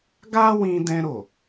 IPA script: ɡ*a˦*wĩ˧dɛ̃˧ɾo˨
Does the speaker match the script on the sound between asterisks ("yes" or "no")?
yes